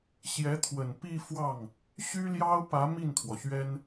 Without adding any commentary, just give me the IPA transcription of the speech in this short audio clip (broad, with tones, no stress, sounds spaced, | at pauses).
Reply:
ɕ j ɛ˧˥ t̪ʰ w ə˨˩ n p i˥˧ f w ɑ˥˩ ŋ | ɕ y˥ l j ɑ˥ ʊ̯ p ä˧˥ m i˥˩ n t̪ʰ w ɔ˩ ɕ ɥ ɛ˥ n